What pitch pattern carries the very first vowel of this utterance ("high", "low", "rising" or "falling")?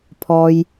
low